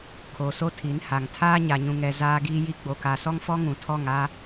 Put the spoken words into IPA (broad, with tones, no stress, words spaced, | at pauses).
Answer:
kʰo˨so˦ tʰi˨˦nha˨ŋ tʰaː˦ɲa˨ɲũ˨ŋɛ˨ zaː˦ɡiː˦ji˦ ɡ͡bo˨ka˨sɔ˦ŋ fɔ˦ŋũ˨tʰɔ˦˨ŋ a˦